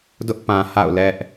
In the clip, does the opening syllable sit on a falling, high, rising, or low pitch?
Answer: high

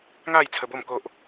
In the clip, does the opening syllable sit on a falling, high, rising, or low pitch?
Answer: falling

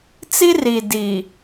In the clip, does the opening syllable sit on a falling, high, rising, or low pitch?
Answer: high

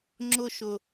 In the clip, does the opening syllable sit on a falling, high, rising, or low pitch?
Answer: high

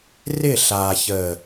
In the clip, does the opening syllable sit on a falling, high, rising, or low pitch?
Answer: falling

